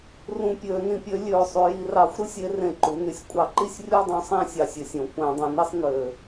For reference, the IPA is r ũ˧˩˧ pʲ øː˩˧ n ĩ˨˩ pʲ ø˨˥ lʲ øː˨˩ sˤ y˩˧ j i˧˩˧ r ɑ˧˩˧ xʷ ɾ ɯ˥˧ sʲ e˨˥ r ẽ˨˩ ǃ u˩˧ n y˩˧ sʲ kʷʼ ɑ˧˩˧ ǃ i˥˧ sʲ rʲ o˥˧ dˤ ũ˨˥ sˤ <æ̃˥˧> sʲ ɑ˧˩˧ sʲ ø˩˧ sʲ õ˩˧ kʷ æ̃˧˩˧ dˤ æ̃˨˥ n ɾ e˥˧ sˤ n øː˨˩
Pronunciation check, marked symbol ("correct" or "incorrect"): correct